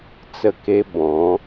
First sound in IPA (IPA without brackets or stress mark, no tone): t͡s